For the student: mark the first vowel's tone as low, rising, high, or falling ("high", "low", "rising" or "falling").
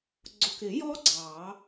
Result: low